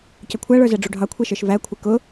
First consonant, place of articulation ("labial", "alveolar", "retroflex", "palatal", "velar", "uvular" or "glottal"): palatal